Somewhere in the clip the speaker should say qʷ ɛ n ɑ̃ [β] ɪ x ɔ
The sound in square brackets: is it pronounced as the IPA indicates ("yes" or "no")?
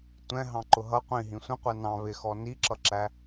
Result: yes